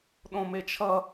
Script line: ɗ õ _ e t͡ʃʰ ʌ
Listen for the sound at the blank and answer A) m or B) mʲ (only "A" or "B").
A